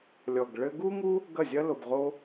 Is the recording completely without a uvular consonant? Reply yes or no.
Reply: no